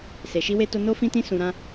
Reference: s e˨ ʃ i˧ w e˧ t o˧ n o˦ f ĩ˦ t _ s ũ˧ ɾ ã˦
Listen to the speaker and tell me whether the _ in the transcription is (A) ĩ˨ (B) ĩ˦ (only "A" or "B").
B